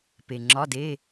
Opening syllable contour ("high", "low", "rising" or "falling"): low